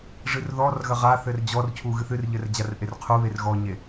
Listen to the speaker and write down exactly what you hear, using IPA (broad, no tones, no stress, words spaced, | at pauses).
ʐɨrðɔrɣɐ ʁaθɘr d͡ʑɔrcʰu ɣɨθɨrʎɘr d͡ʑarʔerqʰuβer ɣɔɲe